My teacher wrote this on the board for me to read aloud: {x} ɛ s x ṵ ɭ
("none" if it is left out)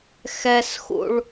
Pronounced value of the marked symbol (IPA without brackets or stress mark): x